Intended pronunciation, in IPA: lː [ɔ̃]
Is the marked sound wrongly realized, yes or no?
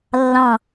yes